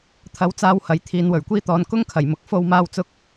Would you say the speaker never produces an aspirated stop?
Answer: no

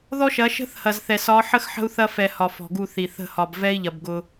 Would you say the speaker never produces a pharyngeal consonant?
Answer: no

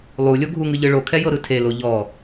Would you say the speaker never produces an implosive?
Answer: yes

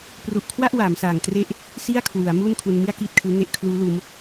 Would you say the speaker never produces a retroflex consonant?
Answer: yes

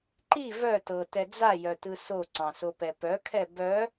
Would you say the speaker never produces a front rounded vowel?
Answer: no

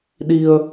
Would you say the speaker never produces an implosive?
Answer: no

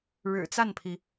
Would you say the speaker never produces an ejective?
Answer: yes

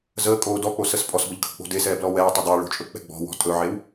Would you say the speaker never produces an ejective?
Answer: no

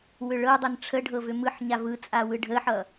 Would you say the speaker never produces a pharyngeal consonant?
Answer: no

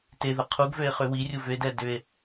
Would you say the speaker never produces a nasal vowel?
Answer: yes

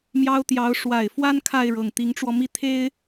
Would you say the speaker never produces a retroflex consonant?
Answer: no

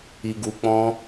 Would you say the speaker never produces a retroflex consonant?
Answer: yes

